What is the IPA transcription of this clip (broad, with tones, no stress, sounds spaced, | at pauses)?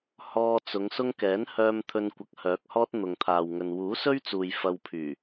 h ɔː˧ t͡s ʊ˨˧ ŋ s ʊ˥ ŋ k ɛː˨˥ n h œː˧ m t̪ʰ ɵ˧ n kʷ ɐ˨˥ k̚ h œː˨˥ k̚ h ɔː˥ t̚ n̪ ʊ˨ ŋ t̪ʰ aː˨ w ŋ ɵ˨ n w uː˨˥ s ɵ˥ ɥ t͡s uː˨ j f ɐ˧ w pʰ yː˨˩